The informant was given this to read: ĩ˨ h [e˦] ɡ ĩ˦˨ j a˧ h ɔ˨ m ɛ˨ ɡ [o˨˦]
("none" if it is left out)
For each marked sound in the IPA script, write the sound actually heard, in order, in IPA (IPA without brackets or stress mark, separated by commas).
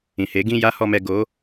e˨˦, o˨˦